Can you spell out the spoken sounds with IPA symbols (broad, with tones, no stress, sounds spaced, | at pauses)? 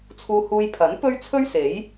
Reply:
t͡sʰ uː˧ h uː˧ j pʰ ɐ˨˥ n p ɵ˥ ɥ t͡sʰ ɵ˥ ɥ s e˨˥ j